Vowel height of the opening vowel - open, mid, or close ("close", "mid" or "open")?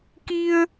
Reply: close